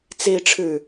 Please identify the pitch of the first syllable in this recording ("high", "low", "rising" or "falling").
high